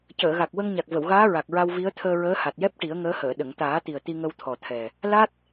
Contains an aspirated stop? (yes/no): yes